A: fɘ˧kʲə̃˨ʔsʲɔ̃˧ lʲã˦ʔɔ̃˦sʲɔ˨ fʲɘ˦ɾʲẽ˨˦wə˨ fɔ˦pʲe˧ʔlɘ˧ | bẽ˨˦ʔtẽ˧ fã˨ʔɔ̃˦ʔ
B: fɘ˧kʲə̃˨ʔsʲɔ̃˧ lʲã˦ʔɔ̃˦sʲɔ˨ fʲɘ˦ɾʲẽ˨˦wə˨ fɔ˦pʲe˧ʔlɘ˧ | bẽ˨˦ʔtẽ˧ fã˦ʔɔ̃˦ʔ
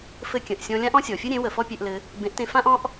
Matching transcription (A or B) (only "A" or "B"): B